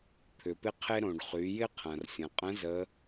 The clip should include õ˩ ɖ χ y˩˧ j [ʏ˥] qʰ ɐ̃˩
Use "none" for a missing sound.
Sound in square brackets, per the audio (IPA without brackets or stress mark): ɪ˥